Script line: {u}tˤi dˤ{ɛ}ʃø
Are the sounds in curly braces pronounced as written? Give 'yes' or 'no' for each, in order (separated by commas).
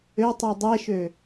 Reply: no, yes